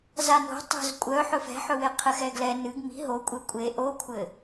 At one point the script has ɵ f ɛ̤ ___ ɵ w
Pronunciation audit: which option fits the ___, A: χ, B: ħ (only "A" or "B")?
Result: B